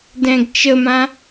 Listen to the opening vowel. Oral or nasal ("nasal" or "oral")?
nasal